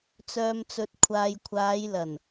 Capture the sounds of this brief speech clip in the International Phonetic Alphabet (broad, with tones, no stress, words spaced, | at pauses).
t͡sœː˨mt͡sɵ˨t̚ kʷʰaː˨jkʷʰaː˨˧jlɐ˨˩n